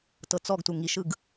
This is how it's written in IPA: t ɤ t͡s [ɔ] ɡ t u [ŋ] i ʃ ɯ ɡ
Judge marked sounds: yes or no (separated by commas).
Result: yes, yes